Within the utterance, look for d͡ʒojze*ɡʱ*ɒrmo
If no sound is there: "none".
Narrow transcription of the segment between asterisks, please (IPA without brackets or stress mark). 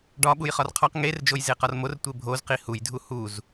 q